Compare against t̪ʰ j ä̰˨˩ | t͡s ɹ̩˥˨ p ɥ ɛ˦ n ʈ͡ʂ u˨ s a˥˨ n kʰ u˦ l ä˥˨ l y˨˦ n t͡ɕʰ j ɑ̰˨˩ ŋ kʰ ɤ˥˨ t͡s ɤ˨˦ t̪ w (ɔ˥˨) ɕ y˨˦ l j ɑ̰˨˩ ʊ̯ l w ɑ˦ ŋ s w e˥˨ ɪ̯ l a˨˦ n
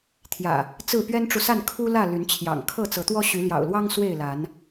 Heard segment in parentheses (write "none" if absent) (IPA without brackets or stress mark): ɔ˦